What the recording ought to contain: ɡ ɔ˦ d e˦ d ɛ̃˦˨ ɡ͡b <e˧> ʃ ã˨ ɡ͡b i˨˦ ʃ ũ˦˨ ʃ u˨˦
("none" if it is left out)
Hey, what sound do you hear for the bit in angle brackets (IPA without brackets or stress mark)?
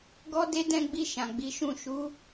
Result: i˧